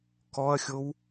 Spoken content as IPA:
k ɔ ɐ̯ xʲ o w

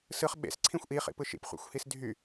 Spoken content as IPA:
s ɯ χ ɓ ḛ s ǀʰ ĩ xʷ ʔ i χ ḭ p ɯ ʃ ḭ p χʷ ḛ xʷ h i s dʱ y

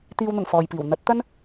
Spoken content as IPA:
t̪ iː˨ w n̪ ʊ˨˩ ŋ f ɔː˨ j p iː˨˩ w n̪ ɐ˨˥ t̚ t̪ ɐ˥ n

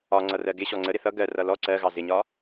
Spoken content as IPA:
ɒ ŋ͡ǀ ʌ r ɜ ɡ ɪ ɕ ɔ ŋ͡ǀ ə ɾ ɪ θ ʌ ɡ ɜ r ʌ l ɔ ǀ ɜ ɣ ɑ z ɪ ɲ ɒ

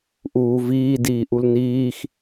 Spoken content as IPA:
ʔ uː v iː d iː ʔ u l n iː x

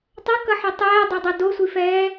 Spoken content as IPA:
tˤ ʌ k ʌ ħ ʌ tˤ ɛː dˤ e dˤ ʌ d o sʷ i f ɛː

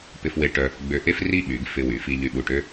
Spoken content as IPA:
p ɪ˧ f w e˧ ʈ œ˧ | ɡ͡b ø˧ ʔ e˥ f r i˥˧ ɓ y˩˧ ɡ f ɪ˧ w y˩˧ f i˧ ʎ y˧ ɓ u˧˩ ʈ ø˥

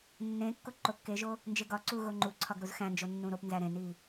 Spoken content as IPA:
nː ẽ kː o ǃ o kː e ʒ o | n d͡ʒ e ɡ ɒ ǀ u ɣ o ŋ͡ǃ u ǀʰ ɒ ɡ ɾ u z x æ̃ n d͡ʒ o nː ũ ɾ o p n z æ ɾ ẽ n i

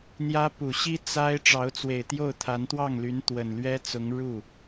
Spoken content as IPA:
n̪ j ä˥ p u˨˩ ɕ i˥ t͡s a˥ ɪ̯ ʈ͡ʂ ɑ˧˥ ʊ̯ t͡s w e˨˩ ɪ̯ t̪ j o˥˩ ʊ̯ t̪ʰ a˧˥ n t̪ w ɑ˥˩ ŋ l y˧˥ n t̪ w ə˨˩ n l ɥ ɛ˥ t͡s ʊ˧˥ ŋ ɻ u˥˩

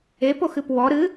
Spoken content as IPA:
e p o x ɨ p w ɔ ɾ ɨ

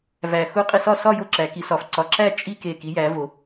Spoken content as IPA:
v æ˧˩ x u˥˧ qʼ i˥˧ s ɒ˥˧ s ɒ˥˧ j o˥˧ ǁ æ˨˦ k i˨˦ s ɒ˨˦ f ǀ ɒ˨˦ ǁ æ˥˧ t͡ʃʼ i˥˧ k e˧˩ k i˨˦ j æ˨˦ v o˨˦

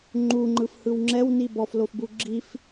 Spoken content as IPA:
ŋ͡ǃ u ŋ͡ǃ ɯ f h ɯ w ŋ͡ǁ ɛ w n i b ɔ f l o f b u ɡ͡ǁ i f

